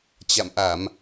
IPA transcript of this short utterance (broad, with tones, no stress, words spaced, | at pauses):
t͡ɕa̰˧˨mʔa˧˩˨m